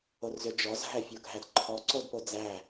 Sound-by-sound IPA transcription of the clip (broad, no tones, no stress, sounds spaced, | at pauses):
o r z ʏ d͡ʒ ɔ z ɦ æ fʲ o ɡʱ æ d ǃʰ ɔ ǀ o d p o d͡z æ